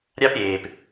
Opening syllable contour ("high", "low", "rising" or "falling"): high